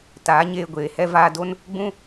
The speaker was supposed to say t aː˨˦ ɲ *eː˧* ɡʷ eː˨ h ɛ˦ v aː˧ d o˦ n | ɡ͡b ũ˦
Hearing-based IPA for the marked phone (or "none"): eː˧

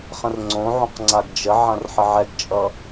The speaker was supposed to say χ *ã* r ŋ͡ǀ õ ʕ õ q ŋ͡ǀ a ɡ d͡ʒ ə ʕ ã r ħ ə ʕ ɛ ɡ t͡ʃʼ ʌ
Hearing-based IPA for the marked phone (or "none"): ə̃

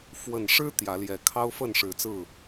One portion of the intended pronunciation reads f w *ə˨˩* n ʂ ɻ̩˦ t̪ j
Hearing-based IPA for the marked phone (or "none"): ə˨˩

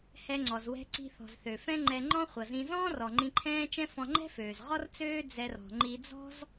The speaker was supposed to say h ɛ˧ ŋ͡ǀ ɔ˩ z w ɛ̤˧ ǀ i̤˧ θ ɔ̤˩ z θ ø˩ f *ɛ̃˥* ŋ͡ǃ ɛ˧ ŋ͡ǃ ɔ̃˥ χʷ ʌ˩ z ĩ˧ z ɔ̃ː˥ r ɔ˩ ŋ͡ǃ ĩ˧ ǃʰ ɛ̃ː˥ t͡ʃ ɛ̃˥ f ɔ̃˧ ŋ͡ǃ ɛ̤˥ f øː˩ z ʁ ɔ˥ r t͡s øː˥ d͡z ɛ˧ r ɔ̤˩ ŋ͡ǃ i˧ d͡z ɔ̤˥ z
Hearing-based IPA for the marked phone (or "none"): ɛ̃˥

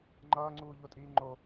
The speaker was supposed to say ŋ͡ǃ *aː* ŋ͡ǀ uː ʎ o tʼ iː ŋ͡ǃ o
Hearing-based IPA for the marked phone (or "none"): ʌː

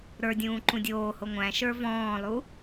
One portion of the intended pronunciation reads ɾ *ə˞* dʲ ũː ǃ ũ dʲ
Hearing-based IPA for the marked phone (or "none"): ə˞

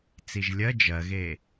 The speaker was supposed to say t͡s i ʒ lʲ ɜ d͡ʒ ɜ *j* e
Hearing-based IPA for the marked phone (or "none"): ɣ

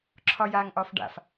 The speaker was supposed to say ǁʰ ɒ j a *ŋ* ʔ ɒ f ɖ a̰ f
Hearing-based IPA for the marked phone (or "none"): ŋ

